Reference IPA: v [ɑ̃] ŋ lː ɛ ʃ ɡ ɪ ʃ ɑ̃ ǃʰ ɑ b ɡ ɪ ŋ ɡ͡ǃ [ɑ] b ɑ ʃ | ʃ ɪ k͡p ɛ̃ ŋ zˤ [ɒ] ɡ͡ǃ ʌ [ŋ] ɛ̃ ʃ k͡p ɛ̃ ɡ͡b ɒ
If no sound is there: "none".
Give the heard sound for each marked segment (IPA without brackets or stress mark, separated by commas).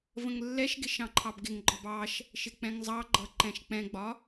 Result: ə̃, ɒ, ɑ, ǃ